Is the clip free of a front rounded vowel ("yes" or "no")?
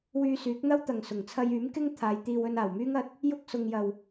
no